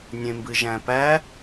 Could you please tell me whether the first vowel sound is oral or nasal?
nasal